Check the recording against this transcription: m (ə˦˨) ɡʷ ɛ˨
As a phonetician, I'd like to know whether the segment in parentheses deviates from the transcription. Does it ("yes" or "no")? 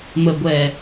yes